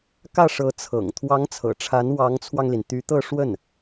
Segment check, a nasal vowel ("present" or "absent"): absent